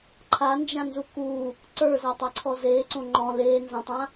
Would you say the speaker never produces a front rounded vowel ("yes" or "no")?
yes